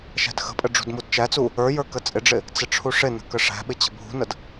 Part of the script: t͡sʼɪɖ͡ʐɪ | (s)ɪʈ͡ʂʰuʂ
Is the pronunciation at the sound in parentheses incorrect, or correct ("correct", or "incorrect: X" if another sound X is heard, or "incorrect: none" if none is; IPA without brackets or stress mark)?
incorrect: t͡s